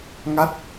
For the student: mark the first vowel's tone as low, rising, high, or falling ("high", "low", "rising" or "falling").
falling